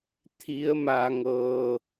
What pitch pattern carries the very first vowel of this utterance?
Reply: rising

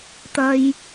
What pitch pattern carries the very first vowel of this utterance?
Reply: high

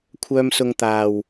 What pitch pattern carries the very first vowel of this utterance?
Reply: high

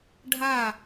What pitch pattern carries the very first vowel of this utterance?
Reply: falling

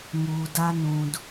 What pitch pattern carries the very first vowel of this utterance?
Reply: low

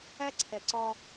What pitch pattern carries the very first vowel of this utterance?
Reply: high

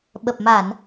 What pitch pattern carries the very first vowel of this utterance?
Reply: low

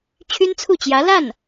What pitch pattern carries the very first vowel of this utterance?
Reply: high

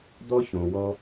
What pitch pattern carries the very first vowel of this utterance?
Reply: high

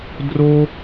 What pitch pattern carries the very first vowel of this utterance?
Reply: high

